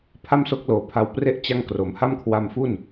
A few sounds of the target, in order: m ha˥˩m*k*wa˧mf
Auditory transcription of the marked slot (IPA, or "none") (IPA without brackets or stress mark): kʰ